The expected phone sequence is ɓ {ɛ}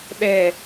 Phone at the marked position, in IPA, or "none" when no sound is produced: ɛ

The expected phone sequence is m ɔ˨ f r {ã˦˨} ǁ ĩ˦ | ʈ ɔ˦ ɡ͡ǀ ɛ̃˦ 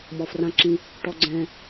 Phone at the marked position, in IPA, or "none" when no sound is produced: ã˦˨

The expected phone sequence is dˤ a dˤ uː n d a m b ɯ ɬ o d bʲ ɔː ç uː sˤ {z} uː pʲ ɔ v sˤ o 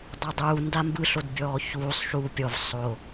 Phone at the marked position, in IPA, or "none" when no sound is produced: ʃ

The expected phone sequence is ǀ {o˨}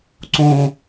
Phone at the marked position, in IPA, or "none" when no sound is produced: õ˨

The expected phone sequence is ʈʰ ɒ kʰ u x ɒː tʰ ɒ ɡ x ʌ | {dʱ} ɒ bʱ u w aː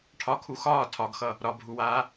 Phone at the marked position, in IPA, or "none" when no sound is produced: ɾ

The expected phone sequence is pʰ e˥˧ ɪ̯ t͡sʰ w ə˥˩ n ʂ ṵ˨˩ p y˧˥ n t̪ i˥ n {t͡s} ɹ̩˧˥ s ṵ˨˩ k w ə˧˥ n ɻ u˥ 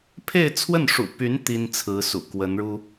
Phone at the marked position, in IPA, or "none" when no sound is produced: t͡sʰ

